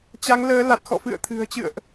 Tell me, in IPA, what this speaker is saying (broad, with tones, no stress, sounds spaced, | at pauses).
t͡ɕ a˨˦ ŋ l əː˨˦ l a˨˩ t̚ x ɔ̰˧˨ f ɨ̰˧˨ ə̯ t̪ʰ ɨ̤˨˩ ə̯ t͡ɕ ɨ̰˧˨ ə̯ ʔ